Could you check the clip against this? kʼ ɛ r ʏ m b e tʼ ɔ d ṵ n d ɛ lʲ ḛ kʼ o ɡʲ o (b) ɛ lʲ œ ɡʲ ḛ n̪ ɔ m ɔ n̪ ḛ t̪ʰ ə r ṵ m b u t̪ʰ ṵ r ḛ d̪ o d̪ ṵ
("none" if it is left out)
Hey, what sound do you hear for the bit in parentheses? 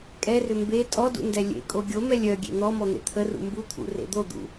m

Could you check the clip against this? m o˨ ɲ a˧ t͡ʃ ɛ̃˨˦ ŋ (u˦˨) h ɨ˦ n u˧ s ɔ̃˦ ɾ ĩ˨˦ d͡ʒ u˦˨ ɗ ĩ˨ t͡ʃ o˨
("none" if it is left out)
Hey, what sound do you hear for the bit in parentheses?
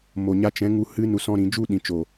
u˧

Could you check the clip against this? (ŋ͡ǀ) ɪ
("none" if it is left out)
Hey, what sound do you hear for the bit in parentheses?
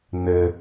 n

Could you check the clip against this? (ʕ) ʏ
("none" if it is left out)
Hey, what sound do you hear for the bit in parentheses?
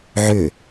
ʕ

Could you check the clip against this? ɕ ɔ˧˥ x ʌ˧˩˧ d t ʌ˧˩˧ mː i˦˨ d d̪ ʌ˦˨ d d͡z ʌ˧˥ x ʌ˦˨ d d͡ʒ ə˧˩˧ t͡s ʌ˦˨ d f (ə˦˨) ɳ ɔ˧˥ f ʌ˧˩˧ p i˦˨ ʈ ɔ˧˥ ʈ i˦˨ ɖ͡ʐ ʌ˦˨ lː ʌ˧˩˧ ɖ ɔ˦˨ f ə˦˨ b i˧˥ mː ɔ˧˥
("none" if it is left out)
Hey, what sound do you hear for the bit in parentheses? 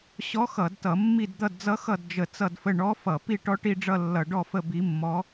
ə˦˨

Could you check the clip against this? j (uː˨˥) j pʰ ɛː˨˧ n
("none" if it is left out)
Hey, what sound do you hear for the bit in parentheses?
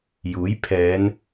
uː˨˥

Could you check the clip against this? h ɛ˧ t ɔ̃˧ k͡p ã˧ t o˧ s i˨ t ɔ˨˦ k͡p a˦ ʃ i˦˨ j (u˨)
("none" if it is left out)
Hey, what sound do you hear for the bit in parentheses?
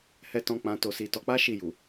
u˨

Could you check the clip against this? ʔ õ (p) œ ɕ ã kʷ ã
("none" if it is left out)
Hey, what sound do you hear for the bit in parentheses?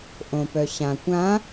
p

